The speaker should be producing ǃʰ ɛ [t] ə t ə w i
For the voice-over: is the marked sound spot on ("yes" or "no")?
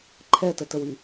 yes